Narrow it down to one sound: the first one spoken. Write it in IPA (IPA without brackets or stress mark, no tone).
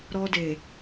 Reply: ɾ